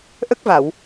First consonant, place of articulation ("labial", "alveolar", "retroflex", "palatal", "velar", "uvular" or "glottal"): glottal